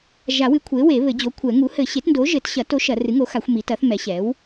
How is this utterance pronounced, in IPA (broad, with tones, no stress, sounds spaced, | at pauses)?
ʒ a˨˩˦ w ɨ˩˥ kʷʰ e˩˥ w e˨˩˦ β ɘ˨˩˦ d͡ʑ o˩˥ kʷʰ ɛ˨˩˦ ŋ u˩˥ h ɘ˨˩˦ ɕ e˩˥ t n d o˩˥ ʒ ɘ˨˩˦ t ɕ ɐ˨˩˦ t o˩˥ ʃ ɐ˨˩˦ r ɨ˩˥ ŋ o˩˥ x a˨˩˦ xʷ m i˩˥ t ɐ˩˥ θ m ɛ˩˥ ɕ ɛ˩˥ w